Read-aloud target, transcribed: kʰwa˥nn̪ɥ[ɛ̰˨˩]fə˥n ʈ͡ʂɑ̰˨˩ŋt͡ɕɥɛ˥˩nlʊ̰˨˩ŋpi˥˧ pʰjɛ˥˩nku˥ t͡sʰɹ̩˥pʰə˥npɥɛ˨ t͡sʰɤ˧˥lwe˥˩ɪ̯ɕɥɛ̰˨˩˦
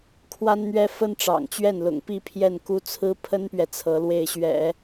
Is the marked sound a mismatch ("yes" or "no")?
yes